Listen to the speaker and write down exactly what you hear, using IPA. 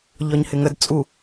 ʎɒɲhɪŋəd t͡sʼu

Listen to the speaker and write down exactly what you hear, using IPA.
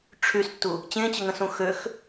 ʈ͡ʂʰystːu | t͡ɕẽt͡ɕəŋə̃sũ xøx

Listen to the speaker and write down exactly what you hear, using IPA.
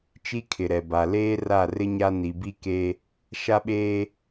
t͡ʃi˦kʰɪ˨ɾɛ˨ba˨ leː˦ra˦˨rɪ˦ ɲa˦ ni˨bi˦ke˦ | ʃa˦ɓeː˦

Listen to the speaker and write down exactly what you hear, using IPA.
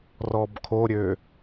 rɔbkʰoɾʲø

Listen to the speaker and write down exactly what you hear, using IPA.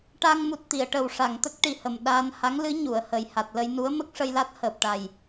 ʈa˧ŋmu˨˩t̚t̪i˨˩˨ə̯ ʈə˨˩wʂa˨˩˨ŋt̪ə˦˥k̚ ʈi˨˩hə˨˩m ɗaː˧n ha˧˥ŋlɨ˧˥ ɲu˨˩˨ə̯hə˨˩j ha˨˩t̚lə˧j nu˧˥ə̯mə˦˥k̚ʂə˧jla˦˥t̚ həː˨˩p̚ʈa˨˩j

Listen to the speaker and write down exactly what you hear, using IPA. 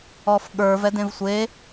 ɔfɠə˞v ɛdẽvsʷe

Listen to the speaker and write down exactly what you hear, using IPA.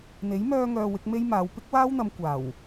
n̪e˨˥jmœː˧ŋœː˨ wɪ˨˥k̚me˥jmaː˨˧w pɪ˥k̚waː˥wn̪ɐ˨˧m kʷaː˨˩w

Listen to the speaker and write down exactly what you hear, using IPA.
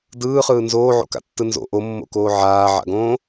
dɯːχɯː nzoːʕo̰ka̰tːɯ nzo̰ ʔomːo̰koː ʕaːʕa̰ɡõː

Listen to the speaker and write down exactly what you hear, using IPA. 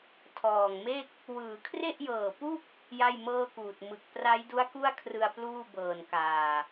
tʰɔː˨˩ŋme˥˩k̚ | wɯː˩˦kʰre˥˩ʔjɤː˨˩pu˥˩k̚ | ja˥˩jmɤː˥˩kuː˨˩t̚ mɯ˨˩k̚ pra˦˥jdu˦˥a̯ ku˥˩a̯kʰrɯ˧a̯ pluː˥˩bɤː˨˩nkaː˨˩

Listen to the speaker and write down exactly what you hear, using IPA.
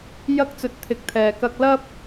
jɐ˥k̚t͡sɵ˧t̚t̪ʰɪ˨˥k̚t̪ʰɛː˨ kɐ˧k̚lɐ˥p̚

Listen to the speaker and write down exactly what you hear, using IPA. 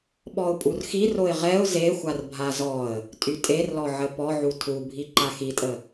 ɓɔʊ̯pʼurxiroɪ̯ ʁɛʊ̯ zexʷar bʱazɔə̯ | tʼytʼerlɔʕə pɔʕu tʰubʱi ǃaxitʼə

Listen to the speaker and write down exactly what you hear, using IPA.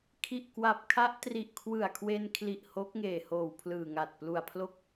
kʰi˨˩ʔkwa˨˩p̚kʰa˦˥ʔ tri˨˩ʔkʰwɯ˨˩a̯kʰwe˧nkʰli˨˩ʔ hoː˦˥k̚ŋeː˨˩hoː˨˩w pʰlɯː˨˩ŋa˨˩t̚plu˨˩a̯pʰlo˥˩k̚

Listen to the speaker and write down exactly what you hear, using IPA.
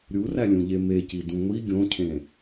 ɾʲurælʲũʎe mecidũ ŋʷi ɡʲõcʰẽ

